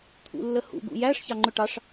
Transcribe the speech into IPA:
t̪ʰ ṵ lː ə h ṵ ɡ ṵ j æ ʂ ç ɑ ŋ͡ǃ ʊ ʈ ɑ ʂ

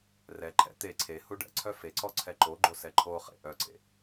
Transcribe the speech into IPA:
r ɛ ǃʰ ɛ̰ t̪ e ǀʰ e h u ɖ ɛ̰ ǀʰ œ f e ǀ ɔ ǀʰ ɛ ǃ o ɡ͡ǃ o s ɛ ǃʰ o χ ḛ ʔ œ ǀ ḛ

